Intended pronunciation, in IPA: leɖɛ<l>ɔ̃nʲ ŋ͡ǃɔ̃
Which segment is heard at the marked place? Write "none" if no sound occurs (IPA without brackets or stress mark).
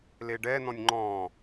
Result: n